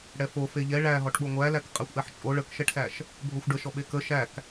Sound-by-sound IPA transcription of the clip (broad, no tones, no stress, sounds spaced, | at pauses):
ɽ ɛ f o f e ʎ ɛ ɭ æ ɦ ɔ ʈ ɓ o ŋʷ æ l æ k qʼ æ xʷ ʔ ɛ ħ t͡ʃʼ o ɭ ə k ʃ ɛ ʈ s æ ʃ | bʱ o xʷ ɖ ə ʃ ɔ ɓ e k ə ʃ æ k